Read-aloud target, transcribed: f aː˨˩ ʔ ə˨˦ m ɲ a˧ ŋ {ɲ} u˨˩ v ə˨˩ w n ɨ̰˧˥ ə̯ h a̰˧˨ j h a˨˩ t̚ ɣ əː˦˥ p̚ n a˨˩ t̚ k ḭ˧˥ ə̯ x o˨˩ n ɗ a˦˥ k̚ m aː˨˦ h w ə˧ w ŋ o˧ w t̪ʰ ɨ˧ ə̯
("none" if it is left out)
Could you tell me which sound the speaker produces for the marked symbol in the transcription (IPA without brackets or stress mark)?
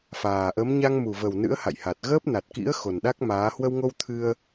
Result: m